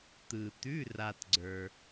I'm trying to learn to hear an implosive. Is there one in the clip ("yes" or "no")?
no